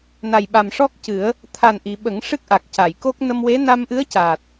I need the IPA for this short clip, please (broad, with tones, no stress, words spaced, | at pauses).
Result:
na˨˩jɓa˨˩mʂɔ˦˥k̚cɨ˨˩˦ə̯ | t̪ʰa˨˩nʔi˨˩˨ ɓə˨˩˦ŋ ʂɨ˦˥k̚ʔa˨˩k̚ca˨˩˨jko˦˥k̚ nə˧mwe˧˥ na˧mʔɨ˧˥ə̯caː˨˩t̚